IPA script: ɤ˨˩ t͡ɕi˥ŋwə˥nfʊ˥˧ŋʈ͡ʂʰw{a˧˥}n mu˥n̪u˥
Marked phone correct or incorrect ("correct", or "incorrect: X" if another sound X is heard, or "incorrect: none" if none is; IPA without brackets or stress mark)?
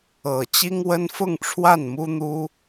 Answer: incorrect: a˥˩